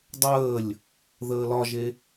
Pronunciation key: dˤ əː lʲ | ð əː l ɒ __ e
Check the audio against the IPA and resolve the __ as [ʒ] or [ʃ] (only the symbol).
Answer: ʒ